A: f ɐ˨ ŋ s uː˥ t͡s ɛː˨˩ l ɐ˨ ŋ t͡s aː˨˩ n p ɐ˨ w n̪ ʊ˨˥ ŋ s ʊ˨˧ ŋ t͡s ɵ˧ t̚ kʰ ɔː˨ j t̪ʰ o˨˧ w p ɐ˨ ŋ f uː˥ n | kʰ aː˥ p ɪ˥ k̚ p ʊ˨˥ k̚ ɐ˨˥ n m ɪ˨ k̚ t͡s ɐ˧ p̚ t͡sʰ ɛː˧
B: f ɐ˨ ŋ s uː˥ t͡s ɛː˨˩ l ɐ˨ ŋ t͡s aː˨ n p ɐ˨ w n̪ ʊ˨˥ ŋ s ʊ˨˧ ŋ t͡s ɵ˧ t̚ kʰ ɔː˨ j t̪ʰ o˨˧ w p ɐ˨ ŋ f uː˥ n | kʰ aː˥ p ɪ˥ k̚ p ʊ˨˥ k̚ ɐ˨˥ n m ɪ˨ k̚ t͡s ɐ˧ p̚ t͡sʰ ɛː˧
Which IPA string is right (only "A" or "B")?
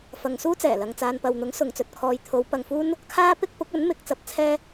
B